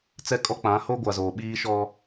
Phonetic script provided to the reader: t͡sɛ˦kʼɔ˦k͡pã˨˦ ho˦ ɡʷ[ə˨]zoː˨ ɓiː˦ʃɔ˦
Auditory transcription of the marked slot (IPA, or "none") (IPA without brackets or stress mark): a˨